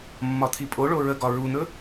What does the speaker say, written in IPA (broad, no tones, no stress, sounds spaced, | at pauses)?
mː ɒ t̪ʰ i pʼ o ɭ o ɹ ə ɡ ɒ ɹ u n̪ ɵ